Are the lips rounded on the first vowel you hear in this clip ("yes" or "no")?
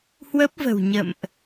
no